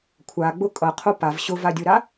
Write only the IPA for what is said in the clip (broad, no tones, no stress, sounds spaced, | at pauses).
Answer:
kʷʰ a ɡ͡b ʊ kʼ ʌ qʰ o p a v ɕ ʊ v a dʲ o ɾ a